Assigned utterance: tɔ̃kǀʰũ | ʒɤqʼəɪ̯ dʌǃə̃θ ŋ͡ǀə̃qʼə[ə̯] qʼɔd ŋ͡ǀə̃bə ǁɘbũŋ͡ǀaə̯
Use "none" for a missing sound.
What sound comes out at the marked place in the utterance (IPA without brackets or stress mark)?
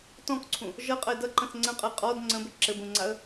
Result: ɪ̯